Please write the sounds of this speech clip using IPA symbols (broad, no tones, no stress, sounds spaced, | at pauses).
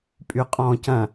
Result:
pʼ y qʼ ɔ̃ c ɐ̃